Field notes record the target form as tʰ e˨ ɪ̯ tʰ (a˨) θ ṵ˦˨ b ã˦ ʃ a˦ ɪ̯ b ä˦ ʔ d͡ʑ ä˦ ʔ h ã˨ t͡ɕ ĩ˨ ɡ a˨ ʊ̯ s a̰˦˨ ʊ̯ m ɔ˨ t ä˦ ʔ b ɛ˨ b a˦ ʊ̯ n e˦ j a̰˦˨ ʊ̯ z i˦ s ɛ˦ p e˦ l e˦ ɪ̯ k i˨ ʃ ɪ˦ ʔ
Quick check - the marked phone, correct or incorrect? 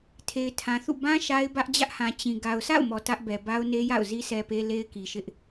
incorrect